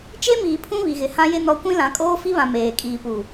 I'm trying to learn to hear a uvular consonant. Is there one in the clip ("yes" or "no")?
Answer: no